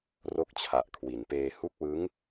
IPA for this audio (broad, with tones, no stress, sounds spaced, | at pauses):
r o˦˥ k̚ t͡ɕʰ a˨˩ ʔ kʰ w i˩˦ n p eː˧ h u˦˥ k̚ w ɯ˦˥ ŋ